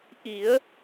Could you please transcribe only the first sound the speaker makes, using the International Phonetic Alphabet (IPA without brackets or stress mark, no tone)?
ʔ